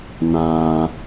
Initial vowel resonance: nasal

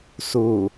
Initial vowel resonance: oral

